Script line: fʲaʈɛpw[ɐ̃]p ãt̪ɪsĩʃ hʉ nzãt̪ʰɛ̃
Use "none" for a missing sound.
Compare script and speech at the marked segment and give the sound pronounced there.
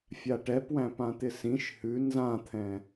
æ̃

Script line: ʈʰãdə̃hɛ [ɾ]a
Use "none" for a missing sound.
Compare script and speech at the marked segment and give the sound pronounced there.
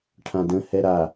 ɾ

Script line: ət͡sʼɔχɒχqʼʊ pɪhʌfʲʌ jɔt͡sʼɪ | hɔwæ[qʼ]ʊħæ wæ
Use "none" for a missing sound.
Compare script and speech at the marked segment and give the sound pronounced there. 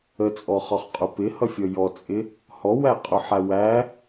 qʼ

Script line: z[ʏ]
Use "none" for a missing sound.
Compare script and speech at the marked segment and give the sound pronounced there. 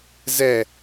ɛ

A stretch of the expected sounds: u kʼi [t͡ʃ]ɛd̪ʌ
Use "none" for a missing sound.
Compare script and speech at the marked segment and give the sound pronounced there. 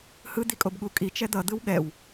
t͡ʃ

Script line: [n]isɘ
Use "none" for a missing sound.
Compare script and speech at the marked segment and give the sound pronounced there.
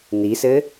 n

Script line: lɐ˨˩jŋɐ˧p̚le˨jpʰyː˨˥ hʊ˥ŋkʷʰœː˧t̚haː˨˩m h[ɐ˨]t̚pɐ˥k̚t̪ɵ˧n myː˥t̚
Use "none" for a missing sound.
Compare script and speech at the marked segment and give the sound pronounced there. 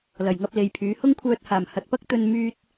ɐ˨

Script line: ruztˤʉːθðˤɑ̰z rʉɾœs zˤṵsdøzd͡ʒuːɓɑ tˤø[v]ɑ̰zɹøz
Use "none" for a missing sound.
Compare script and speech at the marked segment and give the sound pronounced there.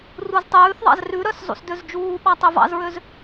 v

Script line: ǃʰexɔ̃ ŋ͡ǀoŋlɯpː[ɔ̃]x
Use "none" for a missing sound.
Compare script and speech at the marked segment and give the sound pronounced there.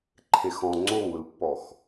ɔ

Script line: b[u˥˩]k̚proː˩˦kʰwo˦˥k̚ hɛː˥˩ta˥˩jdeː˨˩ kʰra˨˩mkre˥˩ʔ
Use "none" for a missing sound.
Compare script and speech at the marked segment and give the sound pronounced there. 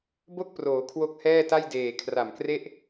o˥˩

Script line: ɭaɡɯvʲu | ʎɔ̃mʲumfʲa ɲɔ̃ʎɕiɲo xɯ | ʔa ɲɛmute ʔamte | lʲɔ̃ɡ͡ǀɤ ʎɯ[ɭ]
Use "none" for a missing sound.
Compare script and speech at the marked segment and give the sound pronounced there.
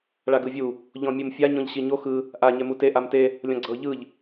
ʎ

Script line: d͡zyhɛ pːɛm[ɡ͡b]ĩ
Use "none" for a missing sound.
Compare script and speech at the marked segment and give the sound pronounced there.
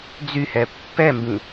b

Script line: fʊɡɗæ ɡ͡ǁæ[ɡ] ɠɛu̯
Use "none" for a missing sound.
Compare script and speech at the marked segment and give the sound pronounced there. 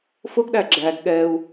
ɡ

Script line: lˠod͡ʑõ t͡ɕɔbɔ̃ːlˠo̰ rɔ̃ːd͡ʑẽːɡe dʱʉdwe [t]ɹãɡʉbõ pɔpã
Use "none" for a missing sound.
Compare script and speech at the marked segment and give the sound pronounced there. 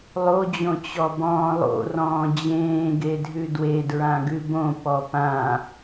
d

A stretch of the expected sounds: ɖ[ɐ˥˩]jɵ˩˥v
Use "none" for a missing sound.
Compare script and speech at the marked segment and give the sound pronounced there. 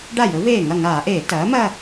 a˥˩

